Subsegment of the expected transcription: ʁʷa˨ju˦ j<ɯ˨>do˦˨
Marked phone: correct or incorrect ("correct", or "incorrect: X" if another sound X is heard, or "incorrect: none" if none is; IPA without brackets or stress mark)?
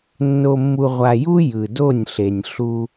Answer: correct